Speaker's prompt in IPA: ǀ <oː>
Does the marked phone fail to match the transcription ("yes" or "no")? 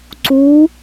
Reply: yes